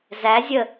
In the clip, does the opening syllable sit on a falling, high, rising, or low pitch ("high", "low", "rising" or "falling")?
rising